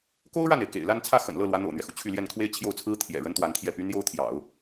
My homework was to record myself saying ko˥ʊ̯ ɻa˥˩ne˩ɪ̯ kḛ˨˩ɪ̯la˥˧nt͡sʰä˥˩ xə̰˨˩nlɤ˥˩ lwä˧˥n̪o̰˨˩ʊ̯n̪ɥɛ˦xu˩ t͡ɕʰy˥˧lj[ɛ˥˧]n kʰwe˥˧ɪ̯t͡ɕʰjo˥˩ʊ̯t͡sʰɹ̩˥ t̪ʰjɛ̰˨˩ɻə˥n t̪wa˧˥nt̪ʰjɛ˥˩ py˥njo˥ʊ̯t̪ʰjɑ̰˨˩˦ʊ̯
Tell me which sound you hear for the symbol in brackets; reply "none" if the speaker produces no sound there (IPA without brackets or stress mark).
ɛ˥˧